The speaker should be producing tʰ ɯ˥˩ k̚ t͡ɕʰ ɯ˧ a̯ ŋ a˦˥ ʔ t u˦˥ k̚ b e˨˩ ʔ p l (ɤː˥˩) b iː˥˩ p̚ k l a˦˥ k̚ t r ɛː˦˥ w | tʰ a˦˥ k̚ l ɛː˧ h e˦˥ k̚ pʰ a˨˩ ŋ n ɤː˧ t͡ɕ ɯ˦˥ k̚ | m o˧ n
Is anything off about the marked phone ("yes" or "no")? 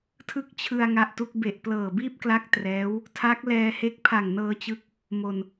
yes